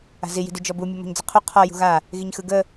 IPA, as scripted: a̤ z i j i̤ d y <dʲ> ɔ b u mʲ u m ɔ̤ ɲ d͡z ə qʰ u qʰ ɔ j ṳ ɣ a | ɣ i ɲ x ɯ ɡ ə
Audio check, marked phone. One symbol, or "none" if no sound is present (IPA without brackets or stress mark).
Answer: d͡ʒ